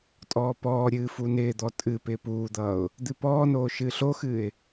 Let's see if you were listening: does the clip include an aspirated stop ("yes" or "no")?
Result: no